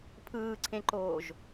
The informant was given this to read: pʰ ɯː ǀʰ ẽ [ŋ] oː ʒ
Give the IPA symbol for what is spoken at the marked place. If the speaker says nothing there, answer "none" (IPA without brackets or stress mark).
ǃ